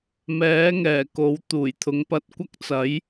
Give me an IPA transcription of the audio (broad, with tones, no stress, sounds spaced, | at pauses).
m ɛː˨˥ ŋ ɛː˨˩ k o˨˥ w t̪ uː˨˩ j t̪ʰ ʊ˨˥ ŋ p ɐ˧ t̚ kʷ ɐ˥ k̚ t͡s ɐ˨˥ j